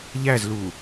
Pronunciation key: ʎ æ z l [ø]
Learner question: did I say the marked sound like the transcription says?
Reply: no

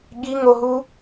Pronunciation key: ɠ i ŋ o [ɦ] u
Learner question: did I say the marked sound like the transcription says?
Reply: yes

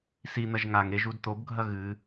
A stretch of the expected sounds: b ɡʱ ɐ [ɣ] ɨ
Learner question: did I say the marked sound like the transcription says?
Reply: yes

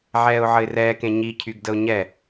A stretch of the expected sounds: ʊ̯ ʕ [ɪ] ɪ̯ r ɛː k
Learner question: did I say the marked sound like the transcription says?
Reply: no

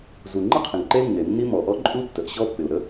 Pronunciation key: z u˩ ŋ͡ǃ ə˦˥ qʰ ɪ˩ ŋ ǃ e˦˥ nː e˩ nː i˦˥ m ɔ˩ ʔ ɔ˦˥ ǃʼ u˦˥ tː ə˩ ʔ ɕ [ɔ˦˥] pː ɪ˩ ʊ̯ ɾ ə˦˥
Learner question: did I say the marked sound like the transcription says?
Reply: yes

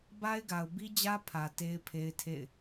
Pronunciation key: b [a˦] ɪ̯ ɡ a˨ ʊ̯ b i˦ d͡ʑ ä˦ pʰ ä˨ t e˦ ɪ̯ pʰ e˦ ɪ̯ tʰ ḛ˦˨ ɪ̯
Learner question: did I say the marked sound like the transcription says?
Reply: yes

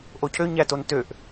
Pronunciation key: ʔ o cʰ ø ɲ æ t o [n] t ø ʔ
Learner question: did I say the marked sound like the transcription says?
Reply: yes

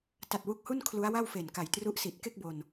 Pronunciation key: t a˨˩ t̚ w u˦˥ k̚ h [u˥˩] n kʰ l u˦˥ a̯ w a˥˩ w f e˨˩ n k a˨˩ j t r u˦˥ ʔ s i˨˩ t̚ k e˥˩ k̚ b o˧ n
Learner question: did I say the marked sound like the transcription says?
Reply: yes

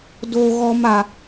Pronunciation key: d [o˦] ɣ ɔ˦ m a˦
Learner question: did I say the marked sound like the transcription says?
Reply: yes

